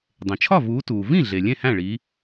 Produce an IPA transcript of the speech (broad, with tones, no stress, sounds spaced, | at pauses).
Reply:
dˤ ẽ˩ t͡ʃʰ ɒ˥˩ v uː˨˦ t uː˩ v ĩ˥˩ ɮ e˩ lʲ ẽ˥˩ h æ̃˥˩ ɭ i˨˦